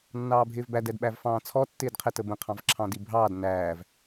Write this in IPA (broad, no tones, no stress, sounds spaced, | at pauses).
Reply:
nː ɑː bʱ ɪː v b æ d ɛ d ɓ æ v f ɑ̃ː t͡sʰ ɔ tː ɪː d qʰ ɛ t ə b ə̃ qʰ ɑ̃ v ǁʰ ɑ̃ d i bʱ ɑː d n æː v